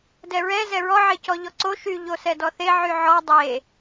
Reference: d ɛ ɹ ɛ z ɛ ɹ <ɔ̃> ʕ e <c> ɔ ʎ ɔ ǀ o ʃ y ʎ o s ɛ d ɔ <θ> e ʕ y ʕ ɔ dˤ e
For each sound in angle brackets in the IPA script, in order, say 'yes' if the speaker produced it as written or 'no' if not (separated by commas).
no, yes, yes